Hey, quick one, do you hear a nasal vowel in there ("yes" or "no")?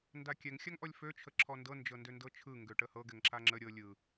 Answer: no